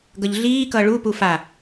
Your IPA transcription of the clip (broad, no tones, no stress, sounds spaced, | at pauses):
ɡ ʌ ʎ ɮ iː k ʌ ɭ u p u f a